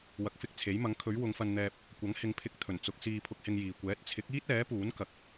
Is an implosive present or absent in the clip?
absent